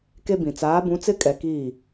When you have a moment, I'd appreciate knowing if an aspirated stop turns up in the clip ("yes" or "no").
no